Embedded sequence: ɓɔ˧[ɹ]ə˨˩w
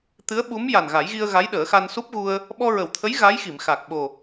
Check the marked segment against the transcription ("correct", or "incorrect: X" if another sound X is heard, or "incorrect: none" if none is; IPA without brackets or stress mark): correct